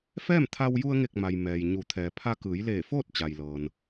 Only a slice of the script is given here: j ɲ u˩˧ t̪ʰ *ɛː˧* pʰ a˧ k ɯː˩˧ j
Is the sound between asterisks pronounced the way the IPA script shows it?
no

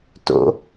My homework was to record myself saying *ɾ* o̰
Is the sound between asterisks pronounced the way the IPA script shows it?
no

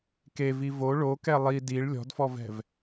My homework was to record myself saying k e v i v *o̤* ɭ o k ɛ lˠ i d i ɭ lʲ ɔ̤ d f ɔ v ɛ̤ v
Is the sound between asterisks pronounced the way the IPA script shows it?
no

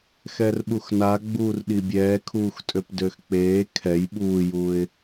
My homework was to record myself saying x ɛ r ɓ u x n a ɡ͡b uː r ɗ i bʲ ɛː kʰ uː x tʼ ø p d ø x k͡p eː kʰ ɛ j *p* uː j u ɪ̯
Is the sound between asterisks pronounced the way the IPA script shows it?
no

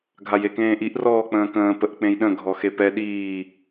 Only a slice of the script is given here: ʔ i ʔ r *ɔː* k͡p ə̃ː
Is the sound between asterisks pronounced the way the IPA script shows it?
yes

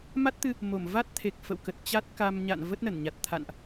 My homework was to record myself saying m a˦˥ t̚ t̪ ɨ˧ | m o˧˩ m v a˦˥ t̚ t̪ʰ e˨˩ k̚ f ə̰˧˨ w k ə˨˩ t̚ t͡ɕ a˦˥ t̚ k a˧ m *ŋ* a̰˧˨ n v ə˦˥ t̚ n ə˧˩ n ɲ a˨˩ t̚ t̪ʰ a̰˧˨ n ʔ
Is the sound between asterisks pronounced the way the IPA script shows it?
no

